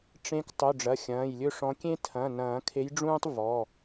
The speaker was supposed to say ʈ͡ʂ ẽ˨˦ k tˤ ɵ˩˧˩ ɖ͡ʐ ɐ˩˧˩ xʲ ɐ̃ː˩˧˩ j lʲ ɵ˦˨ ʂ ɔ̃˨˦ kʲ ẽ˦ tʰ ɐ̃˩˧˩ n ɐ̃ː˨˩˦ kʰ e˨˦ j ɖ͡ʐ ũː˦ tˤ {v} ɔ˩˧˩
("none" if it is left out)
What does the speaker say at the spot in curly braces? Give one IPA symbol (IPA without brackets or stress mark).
v